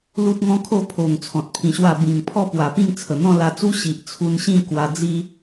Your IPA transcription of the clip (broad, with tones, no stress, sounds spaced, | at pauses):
l u˦ t̚ ŋ ɔ̃˦ kʰ o˥˧ pʰ o˨˩ ŋ t͡sʰ ɔ̃˨ t̚ pʰ ĩ˧ ɕ w a˥˧ b ĩ˨˩ ŋ pʰ ɔ˥˧ p w a˨˩ p ĩ˥˧ ŋ t͡sʰ ə˨˩ n̪ ɔ̃˥˧ l a˧ t͡s u˦ ɕ i˨ ʔ t͡sʰ u˧ n ɕ ĩ˥˧ k w a˧ d͡z i˦